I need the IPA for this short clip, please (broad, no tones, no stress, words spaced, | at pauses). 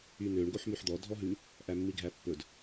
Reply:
ynøɳ ɡoħmyħd̪ɔ dʱɔɦʉ | ʔæmːiɡʱæpːɵd